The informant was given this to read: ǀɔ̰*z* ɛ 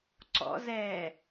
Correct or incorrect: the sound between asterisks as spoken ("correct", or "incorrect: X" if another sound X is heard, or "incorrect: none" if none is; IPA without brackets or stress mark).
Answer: correct